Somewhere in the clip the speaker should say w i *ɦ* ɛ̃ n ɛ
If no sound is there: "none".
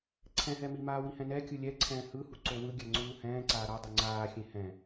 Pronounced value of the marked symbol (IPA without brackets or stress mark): h